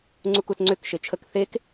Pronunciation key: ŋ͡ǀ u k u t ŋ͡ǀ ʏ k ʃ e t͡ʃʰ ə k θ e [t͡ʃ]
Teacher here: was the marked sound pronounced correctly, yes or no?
no